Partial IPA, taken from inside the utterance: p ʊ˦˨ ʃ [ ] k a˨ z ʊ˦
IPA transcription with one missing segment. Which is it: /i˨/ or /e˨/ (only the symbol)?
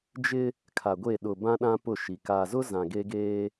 i˨